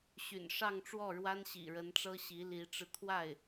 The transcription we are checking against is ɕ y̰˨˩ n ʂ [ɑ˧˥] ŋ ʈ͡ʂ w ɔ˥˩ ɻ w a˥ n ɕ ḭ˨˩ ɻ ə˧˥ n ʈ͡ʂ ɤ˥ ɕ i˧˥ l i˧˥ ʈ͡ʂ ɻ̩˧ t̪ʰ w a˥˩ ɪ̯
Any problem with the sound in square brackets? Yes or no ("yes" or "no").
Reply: yes